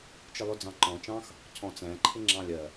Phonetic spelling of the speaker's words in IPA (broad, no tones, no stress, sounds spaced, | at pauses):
t͡ʃ ɪ lˠ ʊ d͡z ɑ̃ ǃ ɔ̃ t͡ʃ ɑ̃ x | cʰ ɔ̃ t͡s æ̃ ǃʰ ɪ ŋ͡ǁ ɑ̃ lʲ ɜ